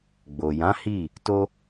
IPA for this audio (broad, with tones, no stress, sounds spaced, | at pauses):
ɡ͡b o˨ j ã˨˦ h i˦˨ | t o˦